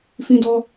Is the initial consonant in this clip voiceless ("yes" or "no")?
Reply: yes